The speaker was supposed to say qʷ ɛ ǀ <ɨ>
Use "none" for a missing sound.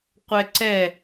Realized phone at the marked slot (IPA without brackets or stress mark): ɛ